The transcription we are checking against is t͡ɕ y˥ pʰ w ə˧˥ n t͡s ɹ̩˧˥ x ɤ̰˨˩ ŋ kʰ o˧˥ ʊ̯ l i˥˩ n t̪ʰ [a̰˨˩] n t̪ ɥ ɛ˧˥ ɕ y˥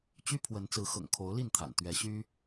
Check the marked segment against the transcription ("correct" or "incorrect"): correct